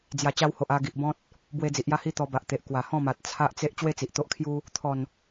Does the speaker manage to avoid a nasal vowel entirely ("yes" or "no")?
no